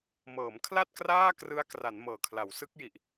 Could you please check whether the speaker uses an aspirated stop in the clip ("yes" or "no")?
yes